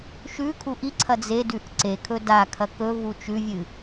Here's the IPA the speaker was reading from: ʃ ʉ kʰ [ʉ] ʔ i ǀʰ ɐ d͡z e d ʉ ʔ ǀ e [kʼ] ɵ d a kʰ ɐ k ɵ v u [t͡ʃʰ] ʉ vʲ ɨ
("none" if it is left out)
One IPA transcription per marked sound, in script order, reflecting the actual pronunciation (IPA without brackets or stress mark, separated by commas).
u, kʰ, t͡ʃ